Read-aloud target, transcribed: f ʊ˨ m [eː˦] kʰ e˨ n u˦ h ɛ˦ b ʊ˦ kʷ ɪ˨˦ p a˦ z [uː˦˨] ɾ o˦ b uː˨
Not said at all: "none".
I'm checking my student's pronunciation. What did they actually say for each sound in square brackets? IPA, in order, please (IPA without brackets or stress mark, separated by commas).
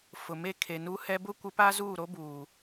e˦, uː˦˨